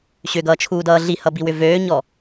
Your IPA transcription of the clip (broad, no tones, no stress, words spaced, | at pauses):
ɕʏɡʌːt͡ʃʰuːdʌː ɮihʌbiwʏ vøːɲɔ